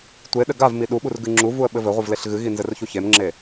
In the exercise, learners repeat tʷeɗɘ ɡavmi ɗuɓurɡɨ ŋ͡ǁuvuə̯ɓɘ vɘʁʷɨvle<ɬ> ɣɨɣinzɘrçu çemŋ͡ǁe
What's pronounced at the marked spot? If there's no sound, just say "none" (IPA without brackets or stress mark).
ɬ